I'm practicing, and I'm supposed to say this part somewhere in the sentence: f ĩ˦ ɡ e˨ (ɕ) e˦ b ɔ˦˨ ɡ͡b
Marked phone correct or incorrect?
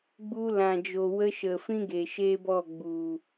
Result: incorrect: ʃ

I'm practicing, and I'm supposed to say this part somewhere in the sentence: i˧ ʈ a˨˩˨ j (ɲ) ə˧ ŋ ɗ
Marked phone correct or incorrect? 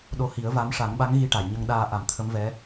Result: correct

